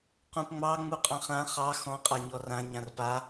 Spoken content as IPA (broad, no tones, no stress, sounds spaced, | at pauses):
q ũ p ŋ͡m ɑ ŋ͡m u qʼ ɑ̃ χ ã χ ɑ x ɔ̃ qʼ a ɲ ɔ r ã ɲ ã r p a